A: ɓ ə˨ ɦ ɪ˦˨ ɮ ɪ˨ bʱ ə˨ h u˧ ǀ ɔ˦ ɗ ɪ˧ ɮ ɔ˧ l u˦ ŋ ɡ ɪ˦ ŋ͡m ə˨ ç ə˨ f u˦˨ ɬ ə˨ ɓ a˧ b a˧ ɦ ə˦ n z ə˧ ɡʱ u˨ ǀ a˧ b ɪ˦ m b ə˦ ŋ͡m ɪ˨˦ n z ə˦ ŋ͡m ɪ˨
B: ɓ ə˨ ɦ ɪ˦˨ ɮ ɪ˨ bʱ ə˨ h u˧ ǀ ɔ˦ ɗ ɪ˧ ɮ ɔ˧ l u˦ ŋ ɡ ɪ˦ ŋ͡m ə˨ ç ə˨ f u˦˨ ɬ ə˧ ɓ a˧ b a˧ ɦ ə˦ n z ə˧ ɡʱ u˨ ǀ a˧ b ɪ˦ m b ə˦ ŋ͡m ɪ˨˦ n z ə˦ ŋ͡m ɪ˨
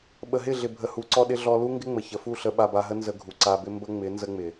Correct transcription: B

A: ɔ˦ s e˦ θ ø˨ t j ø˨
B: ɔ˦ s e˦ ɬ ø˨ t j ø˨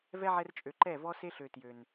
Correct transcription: B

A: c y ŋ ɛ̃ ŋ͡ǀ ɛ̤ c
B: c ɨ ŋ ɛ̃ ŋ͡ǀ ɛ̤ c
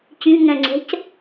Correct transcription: A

